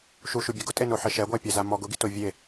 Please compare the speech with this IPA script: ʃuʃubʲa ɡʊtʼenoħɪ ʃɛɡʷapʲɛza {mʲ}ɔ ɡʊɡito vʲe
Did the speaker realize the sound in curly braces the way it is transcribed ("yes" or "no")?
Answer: no